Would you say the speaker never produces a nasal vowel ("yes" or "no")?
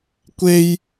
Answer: yes